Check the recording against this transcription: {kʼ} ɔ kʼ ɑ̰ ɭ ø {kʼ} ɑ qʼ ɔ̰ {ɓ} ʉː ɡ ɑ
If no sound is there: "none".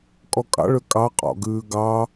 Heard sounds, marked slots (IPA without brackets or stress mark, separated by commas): kʼ, kʼ, ɡ